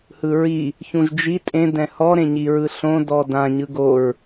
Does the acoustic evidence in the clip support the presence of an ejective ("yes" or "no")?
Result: yes